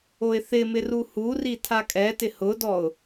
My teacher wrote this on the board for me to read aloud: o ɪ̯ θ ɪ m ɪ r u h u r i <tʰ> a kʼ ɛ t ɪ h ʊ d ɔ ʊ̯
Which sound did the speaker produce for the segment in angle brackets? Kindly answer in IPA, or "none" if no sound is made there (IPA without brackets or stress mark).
tʰ